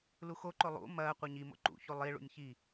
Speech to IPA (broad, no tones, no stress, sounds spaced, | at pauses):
l u x o ǃ o lˠ ṵ m ɐː qʷ ɘ ɲ i m o̰ ǃ ṵ ç u lˠ i ɭ ṵ nʲ ç i